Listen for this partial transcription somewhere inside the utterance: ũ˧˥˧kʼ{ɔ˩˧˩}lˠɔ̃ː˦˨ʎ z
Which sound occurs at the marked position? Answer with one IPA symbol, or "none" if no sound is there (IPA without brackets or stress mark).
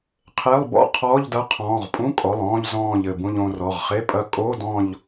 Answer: ɔ˩˧˩